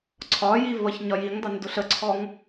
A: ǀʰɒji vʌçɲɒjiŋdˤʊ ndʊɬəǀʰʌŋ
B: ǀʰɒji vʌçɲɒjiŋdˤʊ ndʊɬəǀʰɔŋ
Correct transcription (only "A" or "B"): B